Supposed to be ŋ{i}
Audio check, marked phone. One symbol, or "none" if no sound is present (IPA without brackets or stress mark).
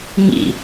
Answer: ḭ